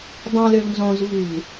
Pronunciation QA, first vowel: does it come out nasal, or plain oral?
nasal